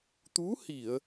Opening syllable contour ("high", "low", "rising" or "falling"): rising